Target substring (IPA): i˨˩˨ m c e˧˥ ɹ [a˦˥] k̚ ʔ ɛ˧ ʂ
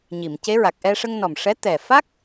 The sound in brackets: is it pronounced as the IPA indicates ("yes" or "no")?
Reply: no